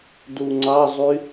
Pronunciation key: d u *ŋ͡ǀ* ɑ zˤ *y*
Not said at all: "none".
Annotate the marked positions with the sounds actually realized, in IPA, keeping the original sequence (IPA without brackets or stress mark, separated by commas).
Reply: ŋ͡ǀ, y